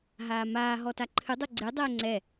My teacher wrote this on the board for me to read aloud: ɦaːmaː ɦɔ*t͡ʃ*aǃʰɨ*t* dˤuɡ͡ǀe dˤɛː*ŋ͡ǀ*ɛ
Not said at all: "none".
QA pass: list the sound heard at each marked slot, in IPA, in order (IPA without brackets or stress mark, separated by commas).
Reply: t, none, ŋ͡ǀ